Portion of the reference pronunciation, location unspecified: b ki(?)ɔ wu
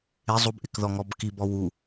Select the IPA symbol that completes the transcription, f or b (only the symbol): b